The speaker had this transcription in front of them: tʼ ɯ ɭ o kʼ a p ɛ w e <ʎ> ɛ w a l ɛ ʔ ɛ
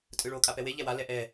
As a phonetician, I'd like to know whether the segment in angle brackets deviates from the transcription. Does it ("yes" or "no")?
no